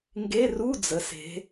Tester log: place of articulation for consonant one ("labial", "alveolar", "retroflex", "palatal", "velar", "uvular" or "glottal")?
velar